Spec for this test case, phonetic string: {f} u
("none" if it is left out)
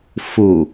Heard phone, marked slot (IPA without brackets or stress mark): f